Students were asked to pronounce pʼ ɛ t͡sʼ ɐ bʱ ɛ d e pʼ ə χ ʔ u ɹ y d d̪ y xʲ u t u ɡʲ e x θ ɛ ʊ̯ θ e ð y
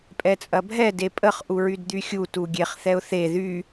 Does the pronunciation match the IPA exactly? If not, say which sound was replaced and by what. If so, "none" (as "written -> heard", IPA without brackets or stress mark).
x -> χ